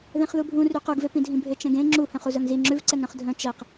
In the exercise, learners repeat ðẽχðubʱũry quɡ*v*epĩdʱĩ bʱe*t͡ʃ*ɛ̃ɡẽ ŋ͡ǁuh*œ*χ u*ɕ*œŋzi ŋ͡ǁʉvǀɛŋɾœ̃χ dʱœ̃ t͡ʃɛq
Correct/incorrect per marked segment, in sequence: correct, correct, incorrect, incorrect

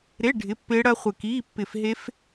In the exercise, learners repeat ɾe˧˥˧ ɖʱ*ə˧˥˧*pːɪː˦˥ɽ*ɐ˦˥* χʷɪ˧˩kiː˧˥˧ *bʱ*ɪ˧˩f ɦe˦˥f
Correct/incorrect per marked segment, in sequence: incorrect, correct, incorrect

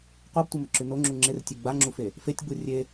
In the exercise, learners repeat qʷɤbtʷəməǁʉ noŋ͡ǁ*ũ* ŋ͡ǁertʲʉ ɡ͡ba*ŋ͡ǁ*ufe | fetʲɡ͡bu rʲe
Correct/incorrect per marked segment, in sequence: incorrect, correct

